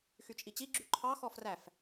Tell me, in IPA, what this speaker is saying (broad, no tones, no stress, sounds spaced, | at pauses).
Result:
x y t͡ʃʼ i t͡ɕ i ɡ͡ǁ y ǃʰ ɑ x ɔ f r æ f